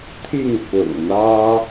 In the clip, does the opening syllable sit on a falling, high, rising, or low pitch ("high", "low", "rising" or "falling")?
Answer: falling